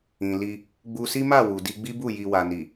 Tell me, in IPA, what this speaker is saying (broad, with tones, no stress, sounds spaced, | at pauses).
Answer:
ĩ˨ l i˧ | ɡ͡b u˧ s i˦ m a˦˨ w u˨ d i˧ ɡ͡b i˦ b u˦˨ j i˨ w a˨ n i˨